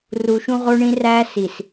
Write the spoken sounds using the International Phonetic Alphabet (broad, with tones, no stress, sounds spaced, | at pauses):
r u˨ ʃ ũ˦ ʁ o˦ ɳ ĩ˦ r æ˦ s i˨ s